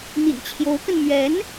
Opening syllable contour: low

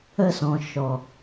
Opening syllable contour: high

